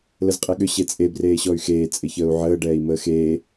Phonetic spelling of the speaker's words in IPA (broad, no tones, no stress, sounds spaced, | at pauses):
l ə z qʼ e ɠ ʏ ɕ e t͡sʼ e b r eː ɕ ɔ y̯ x eː t͡sʼ ɪ ç əː u̯ ʕ əː ɖ ɛː i̯ m əː x eː